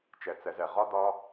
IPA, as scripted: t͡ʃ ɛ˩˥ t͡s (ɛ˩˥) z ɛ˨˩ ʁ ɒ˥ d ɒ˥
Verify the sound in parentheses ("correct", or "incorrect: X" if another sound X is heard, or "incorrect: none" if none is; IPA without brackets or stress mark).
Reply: correct